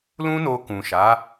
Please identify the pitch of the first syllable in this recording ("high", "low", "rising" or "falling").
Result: high